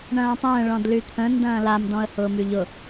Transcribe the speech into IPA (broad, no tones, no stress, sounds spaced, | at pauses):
ɳ ɐ̃ː tˤ ə̃ː ɭ ɔ̃ d l y t̪ʰ ə̃ n d ɐ̃ː l a m d ɔ̃ ə̯ h ʊː m y ʎ ʊ